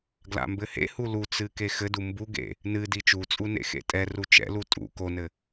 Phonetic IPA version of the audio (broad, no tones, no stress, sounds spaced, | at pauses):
ɡ l a̰ m b ɘ h ḛ h u l u t͡s ɨ k e x ɘ d u m b u ɡ ḛ | n ɨ d i t͡ʃ u t͡sʼ u n ḛ x ḛ tʼ ɛ r u t͡ʃ ɛ̰ l u tʼ ṵ k o n ɘ